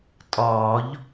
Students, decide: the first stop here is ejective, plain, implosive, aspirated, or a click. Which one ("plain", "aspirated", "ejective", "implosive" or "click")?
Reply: ejective